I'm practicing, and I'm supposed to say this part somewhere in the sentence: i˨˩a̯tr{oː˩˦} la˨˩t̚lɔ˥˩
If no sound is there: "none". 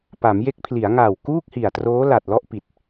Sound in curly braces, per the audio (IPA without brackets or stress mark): oː˦˥